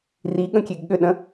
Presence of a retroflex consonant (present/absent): absent